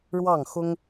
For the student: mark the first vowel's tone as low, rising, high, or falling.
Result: falling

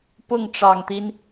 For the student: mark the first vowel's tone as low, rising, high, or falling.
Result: falling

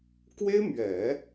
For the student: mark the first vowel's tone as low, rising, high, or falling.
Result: high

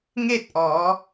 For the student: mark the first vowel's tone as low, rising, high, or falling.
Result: falling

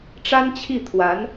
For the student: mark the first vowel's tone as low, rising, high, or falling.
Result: high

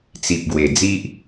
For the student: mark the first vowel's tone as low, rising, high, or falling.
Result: low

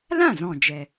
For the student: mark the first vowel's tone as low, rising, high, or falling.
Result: falling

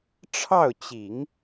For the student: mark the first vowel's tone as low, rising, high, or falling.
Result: falling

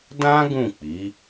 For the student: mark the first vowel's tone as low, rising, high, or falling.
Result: high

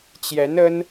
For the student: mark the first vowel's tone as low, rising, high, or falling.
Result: rising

